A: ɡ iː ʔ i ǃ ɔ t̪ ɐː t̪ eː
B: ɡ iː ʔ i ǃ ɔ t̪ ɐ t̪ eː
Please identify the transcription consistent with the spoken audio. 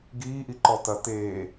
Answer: B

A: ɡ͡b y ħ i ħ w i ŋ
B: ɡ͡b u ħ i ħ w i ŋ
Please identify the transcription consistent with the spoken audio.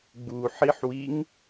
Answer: B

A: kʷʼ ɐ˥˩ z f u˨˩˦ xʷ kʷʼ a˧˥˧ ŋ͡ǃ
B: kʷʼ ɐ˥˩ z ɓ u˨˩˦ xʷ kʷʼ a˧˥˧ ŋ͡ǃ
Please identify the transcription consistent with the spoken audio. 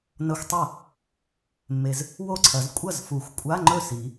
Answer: A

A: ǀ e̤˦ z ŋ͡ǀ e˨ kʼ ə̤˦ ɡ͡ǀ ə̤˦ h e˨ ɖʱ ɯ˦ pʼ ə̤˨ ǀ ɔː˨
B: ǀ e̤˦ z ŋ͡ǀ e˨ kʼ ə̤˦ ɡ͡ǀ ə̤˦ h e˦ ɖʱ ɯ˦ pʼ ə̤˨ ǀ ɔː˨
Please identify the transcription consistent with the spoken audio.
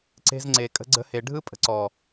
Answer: A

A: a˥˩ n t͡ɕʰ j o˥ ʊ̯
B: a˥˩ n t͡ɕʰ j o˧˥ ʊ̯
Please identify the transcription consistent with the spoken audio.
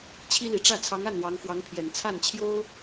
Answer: A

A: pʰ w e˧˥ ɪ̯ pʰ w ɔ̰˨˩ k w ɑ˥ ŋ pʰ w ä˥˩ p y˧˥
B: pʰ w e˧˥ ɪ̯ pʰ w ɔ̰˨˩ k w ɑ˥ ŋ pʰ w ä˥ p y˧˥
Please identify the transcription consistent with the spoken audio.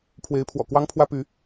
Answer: B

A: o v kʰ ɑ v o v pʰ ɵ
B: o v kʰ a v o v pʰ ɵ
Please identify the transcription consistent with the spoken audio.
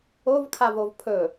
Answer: B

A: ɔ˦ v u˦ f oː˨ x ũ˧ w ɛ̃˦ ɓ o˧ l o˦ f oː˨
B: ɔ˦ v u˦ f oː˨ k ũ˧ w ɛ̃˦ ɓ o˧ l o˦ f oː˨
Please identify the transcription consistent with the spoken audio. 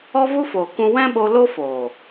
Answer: B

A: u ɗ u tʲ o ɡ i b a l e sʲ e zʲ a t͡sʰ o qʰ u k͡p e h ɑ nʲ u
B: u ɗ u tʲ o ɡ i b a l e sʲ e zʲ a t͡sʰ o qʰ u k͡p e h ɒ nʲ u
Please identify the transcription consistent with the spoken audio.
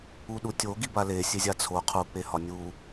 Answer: B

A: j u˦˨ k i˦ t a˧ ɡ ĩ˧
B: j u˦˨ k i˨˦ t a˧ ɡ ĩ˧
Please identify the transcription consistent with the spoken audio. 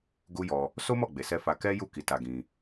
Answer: B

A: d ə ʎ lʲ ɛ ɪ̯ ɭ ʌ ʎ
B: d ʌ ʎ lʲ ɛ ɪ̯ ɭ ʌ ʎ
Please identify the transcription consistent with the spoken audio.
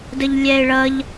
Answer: A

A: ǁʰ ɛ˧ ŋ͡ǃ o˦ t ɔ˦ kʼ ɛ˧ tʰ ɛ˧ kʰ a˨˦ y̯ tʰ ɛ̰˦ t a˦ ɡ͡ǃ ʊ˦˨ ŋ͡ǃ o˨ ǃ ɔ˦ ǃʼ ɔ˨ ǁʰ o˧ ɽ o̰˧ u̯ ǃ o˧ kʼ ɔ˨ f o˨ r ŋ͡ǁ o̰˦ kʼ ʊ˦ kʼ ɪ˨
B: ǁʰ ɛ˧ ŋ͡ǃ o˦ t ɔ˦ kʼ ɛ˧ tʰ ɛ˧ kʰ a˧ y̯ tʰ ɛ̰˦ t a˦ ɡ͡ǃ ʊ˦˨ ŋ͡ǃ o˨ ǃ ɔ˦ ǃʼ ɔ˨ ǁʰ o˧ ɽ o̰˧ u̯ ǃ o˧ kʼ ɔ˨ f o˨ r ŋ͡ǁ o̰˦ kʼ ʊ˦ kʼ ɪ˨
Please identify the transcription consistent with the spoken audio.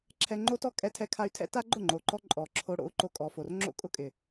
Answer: B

